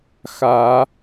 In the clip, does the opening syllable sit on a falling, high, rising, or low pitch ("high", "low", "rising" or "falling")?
rising